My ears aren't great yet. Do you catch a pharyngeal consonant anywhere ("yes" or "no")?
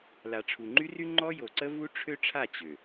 no